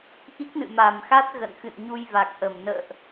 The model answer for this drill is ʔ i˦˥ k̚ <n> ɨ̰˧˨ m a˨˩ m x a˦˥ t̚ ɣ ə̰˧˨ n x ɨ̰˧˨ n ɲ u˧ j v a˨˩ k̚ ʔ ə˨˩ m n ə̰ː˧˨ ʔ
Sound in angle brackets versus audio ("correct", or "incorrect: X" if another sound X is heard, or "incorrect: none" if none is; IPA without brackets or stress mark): correct